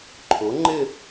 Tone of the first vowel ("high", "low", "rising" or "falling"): rising